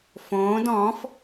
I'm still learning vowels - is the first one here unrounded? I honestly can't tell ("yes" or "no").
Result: no